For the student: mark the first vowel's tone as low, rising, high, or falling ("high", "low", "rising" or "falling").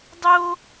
high